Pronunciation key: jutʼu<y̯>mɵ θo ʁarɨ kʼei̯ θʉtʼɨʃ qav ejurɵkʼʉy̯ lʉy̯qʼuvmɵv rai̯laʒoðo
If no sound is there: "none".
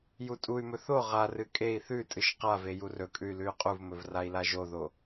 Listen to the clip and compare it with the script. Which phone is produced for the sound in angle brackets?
y̯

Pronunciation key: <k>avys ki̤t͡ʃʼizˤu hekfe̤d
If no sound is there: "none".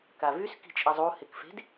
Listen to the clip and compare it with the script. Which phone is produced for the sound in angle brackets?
k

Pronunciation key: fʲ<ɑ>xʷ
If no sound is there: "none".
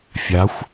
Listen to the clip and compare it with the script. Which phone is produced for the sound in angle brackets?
a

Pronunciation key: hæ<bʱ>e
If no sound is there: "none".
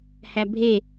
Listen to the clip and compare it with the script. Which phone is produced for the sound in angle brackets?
bʱ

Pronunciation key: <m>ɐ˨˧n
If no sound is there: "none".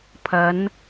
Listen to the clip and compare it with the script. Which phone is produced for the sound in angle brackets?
pʰ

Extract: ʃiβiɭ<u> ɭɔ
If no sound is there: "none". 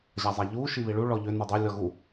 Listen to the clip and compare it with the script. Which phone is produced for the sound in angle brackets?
u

